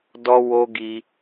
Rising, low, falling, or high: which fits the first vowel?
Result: high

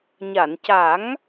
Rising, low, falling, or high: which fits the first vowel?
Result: low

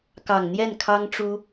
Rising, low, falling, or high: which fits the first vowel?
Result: low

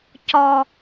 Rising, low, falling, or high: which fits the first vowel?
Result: high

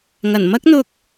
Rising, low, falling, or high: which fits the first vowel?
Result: low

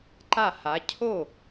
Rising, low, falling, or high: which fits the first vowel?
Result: falling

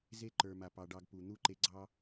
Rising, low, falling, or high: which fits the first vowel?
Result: high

